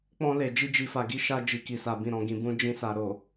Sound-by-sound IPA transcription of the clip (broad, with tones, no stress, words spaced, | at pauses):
k͡pɔ̃˧le˨ d͡ʒi˧d͡ʒi˨fa˨ ɡi˨˦ʃa˧ d͡ʒi˨ki˨sa˨ bĩ˨ɾɔ̃˨ɡĩ˨bũ˨˦ d͡ʒĩ˧ sa˨ɾo˨